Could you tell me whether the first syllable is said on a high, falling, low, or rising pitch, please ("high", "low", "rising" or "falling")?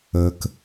low